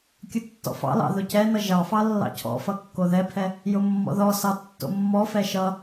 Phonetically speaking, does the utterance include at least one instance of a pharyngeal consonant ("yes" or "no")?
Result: no